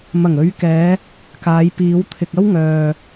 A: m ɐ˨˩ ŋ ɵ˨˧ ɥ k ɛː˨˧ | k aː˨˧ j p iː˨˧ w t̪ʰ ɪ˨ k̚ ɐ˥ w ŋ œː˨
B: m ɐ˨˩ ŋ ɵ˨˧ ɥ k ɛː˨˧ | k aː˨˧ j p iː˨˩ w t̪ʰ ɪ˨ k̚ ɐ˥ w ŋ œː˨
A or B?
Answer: A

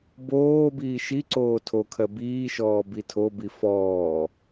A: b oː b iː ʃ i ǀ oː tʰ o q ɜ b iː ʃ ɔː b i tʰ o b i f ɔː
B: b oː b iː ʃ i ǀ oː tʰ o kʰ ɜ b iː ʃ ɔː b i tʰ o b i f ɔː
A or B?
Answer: B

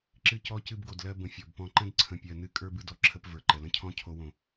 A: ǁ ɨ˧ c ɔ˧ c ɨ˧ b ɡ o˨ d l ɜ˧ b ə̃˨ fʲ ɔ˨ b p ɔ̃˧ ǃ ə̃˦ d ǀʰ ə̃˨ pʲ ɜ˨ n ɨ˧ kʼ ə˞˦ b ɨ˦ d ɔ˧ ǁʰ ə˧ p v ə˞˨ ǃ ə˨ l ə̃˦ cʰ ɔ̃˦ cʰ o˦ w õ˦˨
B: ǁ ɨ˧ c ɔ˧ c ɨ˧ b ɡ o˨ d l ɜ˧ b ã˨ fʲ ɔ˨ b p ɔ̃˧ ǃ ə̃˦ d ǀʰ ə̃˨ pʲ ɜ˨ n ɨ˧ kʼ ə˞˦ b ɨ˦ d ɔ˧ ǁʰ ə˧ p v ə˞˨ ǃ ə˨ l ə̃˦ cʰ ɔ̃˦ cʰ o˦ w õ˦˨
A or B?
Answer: A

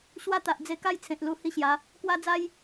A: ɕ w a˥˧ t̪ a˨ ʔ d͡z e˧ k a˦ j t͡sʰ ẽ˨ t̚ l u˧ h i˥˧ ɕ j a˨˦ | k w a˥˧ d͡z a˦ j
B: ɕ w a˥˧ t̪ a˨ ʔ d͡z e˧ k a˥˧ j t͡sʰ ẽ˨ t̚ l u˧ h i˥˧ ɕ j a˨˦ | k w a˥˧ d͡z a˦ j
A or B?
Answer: B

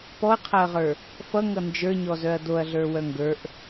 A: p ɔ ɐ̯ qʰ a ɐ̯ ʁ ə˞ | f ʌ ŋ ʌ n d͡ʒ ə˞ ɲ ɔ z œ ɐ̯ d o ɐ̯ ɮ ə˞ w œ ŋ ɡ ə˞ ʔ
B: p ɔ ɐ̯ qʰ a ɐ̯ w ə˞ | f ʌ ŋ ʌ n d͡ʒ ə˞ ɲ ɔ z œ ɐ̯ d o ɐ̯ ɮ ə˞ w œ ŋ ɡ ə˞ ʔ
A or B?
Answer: A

